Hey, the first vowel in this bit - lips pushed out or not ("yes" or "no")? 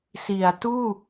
no